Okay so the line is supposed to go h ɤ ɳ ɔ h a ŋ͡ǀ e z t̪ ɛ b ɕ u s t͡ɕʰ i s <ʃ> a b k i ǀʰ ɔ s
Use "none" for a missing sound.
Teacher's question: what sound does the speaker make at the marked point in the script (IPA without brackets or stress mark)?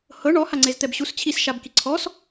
ʃ